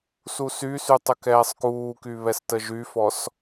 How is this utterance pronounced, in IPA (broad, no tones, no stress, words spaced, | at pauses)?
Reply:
susysy tˤəkɛːsˤkuːky βɛstəʒyfɔs